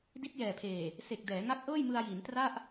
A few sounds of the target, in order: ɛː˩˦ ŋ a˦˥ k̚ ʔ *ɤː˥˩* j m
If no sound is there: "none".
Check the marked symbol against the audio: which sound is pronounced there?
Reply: ɤː˥˩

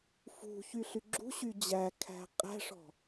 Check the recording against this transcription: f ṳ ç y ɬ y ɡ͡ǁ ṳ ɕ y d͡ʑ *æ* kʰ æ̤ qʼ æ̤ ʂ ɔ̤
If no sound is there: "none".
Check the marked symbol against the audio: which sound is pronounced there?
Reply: æ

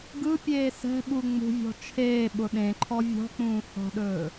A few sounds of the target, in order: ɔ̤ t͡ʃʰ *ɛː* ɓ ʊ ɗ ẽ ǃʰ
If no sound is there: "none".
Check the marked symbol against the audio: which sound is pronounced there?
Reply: eː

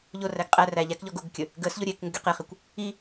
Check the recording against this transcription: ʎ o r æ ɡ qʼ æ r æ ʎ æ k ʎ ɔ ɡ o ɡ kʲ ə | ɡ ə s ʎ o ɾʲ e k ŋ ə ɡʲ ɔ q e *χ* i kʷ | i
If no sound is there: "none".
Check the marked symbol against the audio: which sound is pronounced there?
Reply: χ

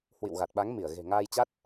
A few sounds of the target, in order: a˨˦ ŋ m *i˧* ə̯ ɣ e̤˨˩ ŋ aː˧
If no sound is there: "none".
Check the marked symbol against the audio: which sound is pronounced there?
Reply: i˧˩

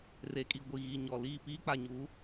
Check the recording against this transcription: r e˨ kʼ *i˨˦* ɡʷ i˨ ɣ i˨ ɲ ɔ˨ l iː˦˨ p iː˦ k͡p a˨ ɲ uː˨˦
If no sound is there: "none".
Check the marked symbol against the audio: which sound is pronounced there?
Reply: i˨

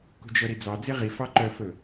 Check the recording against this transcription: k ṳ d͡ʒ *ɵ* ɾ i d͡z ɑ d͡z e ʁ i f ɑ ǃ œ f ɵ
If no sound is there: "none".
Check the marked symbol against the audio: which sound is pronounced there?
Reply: œ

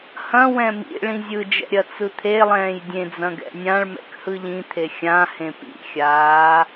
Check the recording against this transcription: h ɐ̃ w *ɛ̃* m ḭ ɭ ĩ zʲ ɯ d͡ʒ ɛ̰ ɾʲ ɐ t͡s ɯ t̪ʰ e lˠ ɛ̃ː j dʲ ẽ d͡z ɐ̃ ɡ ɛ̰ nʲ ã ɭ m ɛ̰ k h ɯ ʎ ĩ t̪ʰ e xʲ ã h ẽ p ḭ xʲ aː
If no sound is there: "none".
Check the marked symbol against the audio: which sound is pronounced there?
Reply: ɛ̃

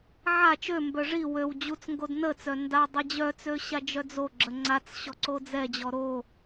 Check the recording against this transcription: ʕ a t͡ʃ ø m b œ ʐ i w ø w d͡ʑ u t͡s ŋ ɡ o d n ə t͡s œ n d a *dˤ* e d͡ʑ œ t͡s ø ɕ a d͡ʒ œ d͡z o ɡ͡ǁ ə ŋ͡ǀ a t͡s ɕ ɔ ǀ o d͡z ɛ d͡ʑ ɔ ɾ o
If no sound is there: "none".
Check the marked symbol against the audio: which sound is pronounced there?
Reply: dˤ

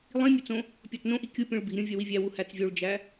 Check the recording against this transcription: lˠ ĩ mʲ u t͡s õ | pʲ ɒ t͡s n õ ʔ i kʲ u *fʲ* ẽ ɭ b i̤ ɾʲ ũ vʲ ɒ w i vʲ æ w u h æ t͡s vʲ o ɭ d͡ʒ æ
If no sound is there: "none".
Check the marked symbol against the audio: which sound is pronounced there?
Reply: pʲ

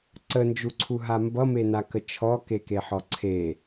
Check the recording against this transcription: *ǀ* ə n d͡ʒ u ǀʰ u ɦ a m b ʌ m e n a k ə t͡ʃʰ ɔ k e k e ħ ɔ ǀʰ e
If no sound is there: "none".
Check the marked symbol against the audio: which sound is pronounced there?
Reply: ǀ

